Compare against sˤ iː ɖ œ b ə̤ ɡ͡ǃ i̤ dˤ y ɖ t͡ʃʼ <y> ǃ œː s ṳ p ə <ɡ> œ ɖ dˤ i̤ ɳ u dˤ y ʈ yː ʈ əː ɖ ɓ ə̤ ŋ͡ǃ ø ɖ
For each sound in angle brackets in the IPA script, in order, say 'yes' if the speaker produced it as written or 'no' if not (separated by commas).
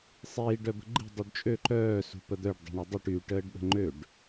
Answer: no, no